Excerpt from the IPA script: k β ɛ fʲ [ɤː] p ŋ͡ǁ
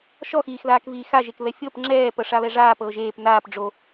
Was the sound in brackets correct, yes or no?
no